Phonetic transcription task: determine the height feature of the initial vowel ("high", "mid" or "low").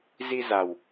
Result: high